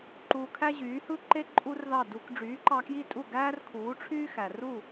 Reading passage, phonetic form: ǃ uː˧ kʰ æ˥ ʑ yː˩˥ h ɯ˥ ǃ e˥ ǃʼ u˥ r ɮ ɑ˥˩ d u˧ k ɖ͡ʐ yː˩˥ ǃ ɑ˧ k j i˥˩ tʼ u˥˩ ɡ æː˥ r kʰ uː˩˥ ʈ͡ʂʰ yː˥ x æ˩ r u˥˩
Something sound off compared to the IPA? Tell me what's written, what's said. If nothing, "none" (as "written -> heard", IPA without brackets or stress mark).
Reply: ɮ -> ð